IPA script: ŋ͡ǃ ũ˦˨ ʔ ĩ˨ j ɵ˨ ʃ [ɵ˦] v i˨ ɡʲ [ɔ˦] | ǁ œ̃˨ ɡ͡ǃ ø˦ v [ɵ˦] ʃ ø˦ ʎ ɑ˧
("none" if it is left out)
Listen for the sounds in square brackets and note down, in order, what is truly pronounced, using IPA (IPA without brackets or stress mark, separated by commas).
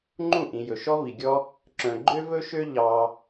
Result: ɔ˦, ɔ˦, ɵ˦